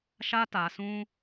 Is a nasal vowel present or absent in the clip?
present